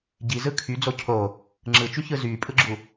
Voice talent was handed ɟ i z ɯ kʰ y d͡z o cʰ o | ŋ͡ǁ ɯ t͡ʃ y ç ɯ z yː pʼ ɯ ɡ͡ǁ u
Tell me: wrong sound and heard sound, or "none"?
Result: none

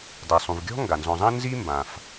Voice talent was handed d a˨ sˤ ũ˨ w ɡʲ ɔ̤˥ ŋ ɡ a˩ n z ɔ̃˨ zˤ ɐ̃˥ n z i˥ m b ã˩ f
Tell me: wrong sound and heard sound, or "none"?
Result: w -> v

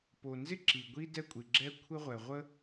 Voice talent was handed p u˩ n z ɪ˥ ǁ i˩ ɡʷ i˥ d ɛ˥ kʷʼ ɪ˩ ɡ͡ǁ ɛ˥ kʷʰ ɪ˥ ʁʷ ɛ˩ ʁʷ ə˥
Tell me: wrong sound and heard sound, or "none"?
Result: u˩ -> o˩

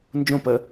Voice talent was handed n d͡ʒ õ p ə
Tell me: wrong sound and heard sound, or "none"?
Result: none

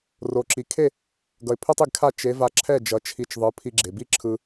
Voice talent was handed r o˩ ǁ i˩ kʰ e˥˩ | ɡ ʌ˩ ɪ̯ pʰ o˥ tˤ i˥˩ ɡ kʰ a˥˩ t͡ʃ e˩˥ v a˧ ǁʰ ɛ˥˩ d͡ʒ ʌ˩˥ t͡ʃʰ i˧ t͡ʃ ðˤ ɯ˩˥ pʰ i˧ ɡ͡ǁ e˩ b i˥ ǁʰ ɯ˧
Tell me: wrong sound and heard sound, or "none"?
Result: none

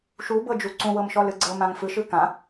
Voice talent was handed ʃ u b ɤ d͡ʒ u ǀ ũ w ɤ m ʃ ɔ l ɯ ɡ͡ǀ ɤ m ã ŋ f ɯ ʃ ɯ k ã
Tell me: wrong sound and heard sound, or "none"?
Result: none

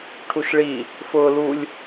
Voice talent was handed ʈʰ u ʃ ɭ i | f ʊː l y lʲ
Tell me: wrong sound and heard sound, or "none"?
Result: y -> u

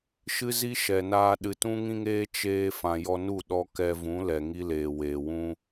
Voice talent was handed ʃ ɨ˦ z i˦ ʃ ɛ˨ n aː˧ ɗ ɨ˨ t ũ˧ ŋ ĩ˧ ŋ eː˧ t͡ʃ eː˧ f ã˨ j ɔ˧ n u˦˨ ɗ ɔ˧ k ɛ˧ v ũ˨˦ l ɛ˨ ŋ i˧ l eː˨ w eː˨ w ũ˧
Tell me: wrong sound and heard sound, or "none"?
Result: none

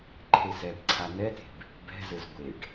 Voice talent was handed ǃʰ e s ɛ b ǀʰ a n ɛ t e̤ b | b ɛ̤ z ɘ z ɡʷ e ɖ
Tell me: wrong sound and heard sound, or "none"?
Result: none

